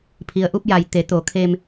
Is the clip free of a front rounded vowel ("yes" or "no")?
yes